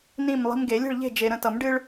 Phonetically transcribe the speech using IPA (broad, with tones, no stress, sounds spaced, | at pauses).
n ĩ˥˨ m lˠ i̤˦ m ɡ e˨˩˦ lʲ ə̤˥˨ ɭ ʎ e̤˥˨ d͡ʒ e˨ ɾ ə̃˥˨ t ʌ˨˩˦ m ɖ ɨ˦ ɭ